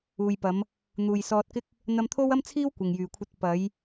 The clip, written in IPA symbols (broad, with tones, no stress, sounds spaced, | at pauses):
uː˨ j p ɐ˨˧ m | n̪ uː˨ j s ɔː˧ t̚ k ɪ˥ k̚ | n̪ ɐ˧ m t̪ʰ o˥ w ɐ˥ m t͡sʰ iː˥ w kʷ ɪ˨ ŋ j yː˨ kʷʰ ɐ˧ t̚ p ɐ˨˧ j